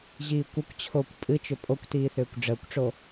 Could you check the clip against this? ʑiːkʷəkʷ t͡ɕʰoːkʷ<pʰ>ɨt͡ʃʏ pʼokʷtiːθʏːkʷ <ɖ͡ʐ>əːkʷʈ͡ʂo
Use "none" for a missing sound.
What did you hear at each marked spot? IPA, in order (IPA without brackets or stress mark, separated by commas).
pʼ, ɖ͡ʐ